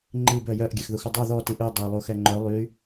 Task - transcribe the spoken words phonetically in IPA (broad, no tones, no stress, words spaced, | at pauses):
ŋ͡ǃib œjœʔ ɡʲɛxðuxudˤu ðɔ tiʔʉ dˤɛ lˠuxɛŋ͡ǃœ lˠy